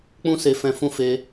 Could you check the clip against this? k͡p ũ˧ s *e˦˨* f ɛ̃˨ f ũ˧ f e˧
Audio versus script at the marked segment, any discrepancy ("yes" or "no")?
yes